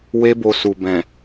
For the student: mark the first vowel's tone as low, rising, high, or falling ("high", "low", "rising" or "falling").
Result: high